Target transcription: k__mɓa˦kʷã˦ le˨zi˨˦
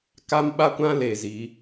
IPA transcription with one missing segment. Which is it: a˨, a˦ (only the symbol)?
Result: a˦